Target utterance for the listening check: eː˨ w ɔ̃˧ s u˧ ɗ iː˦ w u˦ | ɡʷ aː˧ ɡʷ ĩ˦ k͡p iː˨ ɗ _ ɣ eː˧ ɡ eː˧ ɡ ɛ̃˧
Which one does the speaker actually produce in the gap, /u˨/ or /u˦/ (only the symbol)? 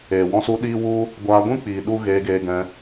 u˦